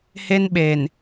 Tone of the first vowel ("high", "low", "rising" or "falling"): high